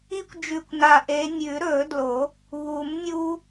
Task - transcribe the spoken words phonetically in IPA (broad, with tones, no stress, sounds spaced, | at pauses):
i˦ kʷ d͡ʒ ʉ˨˩ kʷ n a˨˩ ʔ e˨˦ nʲ ʉ˨˩˦ ɾ ɵ˨˩˦ d l o˨˩˦ | β u˨˩˦ m nʲ u˦